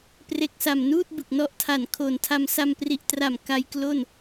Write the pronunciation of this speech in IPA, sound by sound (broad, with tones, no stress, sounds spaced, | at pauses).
p r e˨˩ k̚ s a˨˩ m n uː˥˩ t̚ b ɯ˨˩ k̚ n ɔ˦˥ ʔ tʰ a˨˩ n kʰ o˨˩ n tʰ a˧ m s a˧ m p r i˨˩ ʔ t r a˨˩ m k a˦˥ j k l o˥˩ n